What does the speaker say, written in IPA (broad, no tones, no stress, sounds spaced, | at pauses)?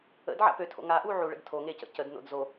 ə̰ d ʕ a̰ p ø tʰ o̰ ŋ a ʔ u ʕ u ɭ ə̰ d tʰ o ŋ e c ə̰ c ə d n o̰ d z o